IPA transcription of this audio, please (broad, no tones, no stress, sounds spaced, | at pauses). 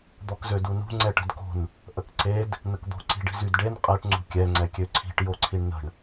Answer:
d̪ ɔ k z ø d u n ṳ ŋ͡ǀ ɛ ʈ ə̤ d k o̤ n | ʔ ə k ǀ e d | n ə k d̪ o̤ ǀ i̤ ɖ i̤ z y d ɖ e n qʼ ɛ ʈ ŋ͡ǀ ṳ kʲ ɛ ŋ͡ǀ ɛ kʲ ø ǀʰ i̤ ʈ j o ǀʰ i ɳ n ə̤ ɳ